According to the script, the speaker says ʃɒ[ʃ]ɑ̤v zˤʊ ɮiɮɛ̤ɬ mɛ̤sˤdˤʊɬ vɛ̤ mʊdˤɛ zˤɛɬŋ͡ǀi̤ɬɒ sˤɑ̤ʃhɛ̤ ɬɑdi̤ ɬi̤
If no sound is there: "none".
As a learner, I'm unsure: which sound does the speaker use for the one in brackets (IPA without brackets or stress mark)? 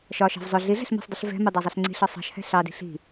ʃ